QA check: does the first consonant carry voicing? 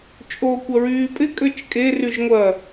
no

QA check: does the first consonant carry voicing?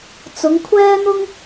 no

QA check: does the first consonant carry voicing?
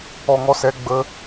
yes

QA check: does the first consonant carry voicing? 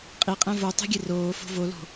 no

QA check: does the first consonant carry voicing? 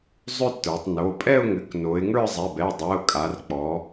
yes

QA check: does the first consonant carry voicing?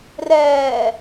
yes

